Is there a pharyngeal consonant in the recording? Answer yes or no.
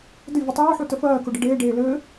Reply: yes